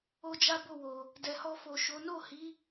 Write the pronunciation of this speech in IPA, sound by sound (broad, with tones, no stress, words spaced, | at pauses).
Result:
o˦d͡ʒa˦ bo˦˨wo˨ | dɛ˨hɔ˧ fo˨ʃo˨˦ no˦˨hi˨˦